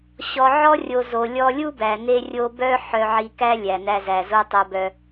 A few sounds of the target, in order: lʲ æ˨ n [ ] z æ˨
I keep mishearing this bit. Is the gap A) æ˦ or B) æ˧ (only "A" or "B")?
B